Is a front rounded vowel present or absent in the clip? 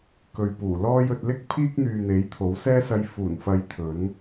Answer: present